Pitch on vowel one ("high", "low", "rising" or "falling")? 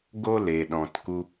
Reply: high